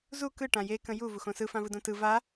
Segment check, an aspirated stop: absent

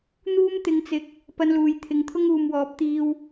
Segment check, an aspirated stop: present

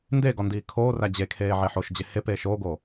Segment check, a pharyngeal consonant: present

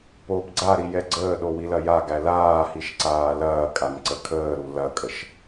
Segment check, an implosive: present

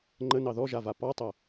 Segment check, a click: present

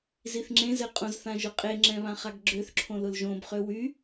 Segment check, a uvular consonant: present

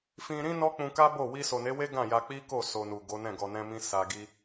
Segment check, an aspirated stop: absent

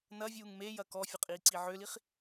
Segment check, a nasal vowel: absent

